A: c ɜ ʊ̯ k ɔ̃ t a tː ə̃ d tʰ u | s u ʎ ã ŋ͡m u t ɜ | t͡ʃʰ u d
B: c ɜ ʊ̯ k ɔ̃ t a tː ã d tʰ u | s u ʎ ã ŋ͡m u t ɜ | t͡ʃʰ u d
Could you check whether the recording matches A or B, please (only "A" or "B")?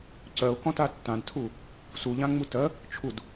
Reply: B